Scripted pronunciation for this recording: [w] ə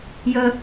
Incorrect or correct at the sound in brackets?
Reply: incorrect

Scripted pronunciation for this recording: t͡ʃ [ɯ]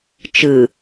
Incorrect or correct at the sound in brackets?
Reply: correct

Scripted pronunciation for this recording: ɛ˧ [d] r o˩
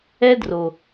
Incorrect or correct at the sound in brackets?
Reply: correct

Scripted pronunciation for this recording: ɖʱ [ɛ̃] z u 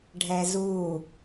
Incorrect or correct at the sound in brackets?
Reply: incorrect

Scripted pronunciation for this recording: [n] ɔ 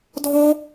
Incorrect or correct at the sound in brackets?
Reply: incorrect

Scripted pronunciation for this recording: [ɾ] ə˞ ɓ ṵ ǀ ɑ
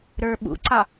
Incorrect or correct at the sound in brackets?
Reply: correct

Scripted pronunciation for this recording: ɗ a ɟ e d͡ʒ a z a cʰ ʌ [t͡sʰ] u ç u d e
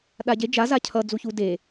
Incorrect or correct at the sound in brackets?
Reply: incorrect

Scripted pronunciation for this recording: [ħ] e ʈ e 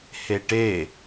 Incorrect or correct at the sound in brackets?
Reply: incorrect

